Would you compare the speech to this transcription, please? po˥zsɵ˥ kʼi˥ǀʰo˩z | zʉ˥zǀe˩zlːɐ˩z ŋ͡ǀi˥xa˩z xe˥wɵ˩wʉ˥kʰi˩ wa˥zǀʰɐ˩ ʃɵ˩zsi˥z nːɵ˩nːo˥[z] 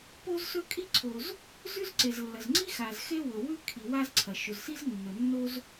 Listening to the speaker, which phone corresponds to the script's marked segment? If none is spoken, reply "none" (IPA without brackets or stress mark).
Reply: z